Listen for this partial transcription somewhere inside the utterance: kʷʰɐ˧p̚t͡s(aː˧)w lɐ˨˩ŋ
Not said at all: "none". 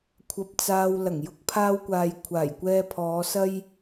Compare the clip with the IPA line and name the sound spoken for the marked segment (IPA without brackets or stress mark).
aː˧